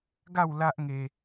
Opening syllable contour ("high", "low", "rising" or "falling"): falling